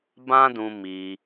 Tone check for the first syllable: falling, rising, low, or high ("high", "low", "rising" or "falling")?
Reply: high